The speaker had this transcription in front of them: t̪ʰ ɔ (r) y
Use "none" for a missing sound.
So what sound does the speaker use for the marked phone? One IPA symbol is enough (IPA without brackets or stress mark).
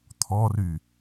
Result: r